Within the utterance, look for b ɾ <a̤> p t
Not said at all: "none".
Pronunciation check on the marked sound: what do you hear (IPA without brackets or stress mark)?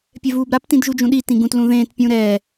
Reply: a